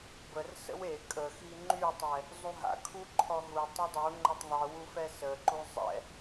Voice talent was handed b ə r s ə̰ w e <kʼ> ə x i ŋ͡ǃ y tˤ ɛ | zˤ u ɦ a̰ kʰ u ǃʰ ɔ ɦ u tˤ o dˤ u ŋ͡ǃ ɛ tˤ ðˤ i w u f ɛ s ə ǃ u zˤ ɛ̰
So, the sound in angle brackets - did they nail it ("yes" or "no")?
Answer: yes